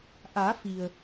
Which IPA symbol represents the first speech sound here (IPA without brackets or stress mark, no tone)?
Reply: ʔ